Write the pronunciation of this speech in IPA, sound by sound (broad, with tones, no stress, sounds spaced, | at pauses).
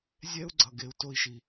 zʲ ɛ˥ u̯ ɡ͡ǀ ʌ˨ ɡ e˨ u̯ t o˥ i̯ ʃ i˨